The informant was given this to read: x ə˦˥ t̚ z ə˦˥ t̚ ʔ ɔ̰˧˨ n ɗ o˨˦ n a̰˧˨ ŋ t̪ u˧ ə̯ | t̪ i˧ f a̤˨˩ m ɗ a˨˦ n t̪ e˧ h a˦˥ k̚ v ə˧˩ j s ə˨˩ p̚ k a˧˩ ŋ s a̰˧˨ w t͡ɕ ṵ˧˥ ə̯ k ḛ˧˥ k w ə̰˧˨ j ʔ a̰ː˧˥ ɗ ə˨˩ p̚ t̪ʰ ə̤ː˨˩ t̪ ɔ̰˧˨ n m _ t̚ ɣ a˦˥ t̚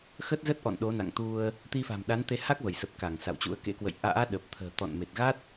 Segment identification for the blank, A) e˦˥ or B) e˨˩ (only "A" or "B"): B